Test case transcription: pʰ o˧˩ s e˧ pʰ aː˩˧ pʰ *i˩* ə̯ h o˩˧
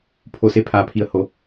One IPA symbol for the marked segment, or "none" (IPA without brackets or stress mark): i˩